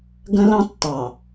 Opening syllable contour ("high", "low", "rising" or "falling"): high